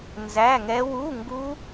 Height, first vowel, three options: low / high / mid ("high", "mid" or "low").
low